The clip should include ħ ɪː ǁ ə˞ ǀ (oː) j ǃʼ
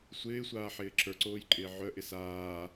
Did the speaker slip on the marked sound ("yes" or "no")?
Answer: no